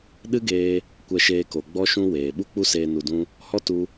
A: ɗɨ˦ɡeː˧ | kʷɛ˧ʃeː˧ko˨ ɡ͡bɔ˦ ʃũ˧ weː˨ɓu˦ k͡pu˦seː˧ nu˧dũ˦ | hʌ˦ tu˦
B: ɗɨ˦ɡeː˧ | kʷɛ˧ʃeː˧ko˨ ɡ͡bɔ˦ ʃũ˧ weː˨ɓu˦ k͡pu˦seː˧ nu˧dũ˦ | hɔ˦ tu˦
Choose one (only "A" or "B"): B